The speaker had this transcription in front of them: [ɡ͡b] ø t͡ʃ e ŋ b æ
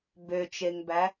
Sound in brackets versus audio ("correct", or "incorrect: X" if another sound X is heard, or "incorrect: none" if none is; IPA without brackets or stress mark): incorrect: b